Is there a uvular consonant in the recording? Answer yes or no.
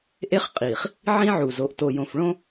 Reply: yes